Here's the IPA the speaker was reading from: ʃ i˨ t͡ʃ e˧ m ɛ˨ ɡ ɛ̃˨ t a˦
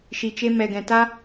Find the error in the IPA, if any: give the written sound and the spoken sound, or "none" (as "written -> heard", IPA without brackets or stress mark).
none